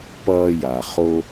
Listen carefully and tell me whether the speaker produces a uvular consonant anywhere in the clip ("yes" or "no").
yes